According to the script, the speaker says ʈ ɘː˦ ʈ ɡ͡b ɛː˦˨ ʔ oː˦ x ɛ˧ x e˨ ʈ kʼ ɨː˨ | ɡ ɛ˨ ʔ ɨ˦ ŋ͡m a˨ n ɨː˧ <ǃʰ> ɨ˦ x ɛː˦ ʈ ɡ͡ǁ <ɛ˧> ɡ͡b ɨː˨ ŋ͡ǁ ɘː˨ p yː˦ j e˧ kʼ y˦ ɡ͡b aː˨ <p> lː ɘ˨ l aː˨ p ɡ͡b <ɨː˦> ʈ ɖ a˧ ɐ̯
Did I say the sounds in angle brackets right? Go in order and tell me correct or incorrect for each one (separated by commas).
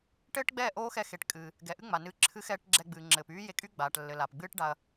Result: incorrect, correct, incorrect, correct